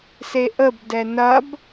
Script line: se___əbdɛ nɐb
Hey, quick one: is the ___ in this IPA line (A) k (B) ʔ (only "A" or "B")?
B